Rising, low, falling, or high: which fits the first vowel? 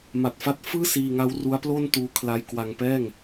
low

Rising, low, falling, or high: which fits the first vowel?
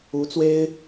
rising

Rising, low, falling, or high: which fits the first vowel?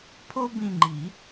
high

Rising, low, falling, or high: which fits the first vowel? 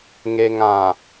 low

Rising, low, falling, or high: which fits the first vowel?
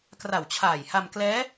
low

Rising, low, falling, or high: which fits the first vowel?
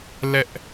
high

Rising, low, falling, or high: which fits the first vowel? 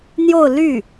falling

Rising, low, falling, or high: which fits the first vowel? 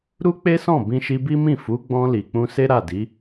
high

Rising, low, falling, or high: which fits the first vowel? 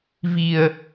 low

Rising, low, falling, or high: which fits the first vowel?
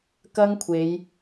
high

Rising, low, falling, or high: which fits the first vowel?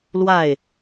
falling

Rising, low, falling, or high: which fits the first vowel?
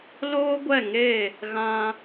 high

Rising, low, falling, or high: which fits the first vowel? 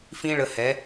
high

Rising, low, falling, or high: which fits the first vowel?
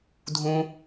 low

